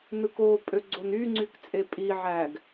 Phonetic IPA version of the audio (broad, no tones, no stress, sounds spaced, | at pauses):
n ɯ k o pʼ ø ɡ͡ǀ o n y ŋ͡ǀ y k t͡sʼ e pʼ i ʕ æ ɡ